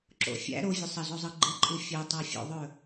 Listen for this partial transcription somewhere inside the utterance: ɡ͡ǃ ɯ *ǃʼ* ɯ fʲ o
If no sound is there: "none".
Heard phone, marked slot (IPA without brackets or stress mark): ǃʼ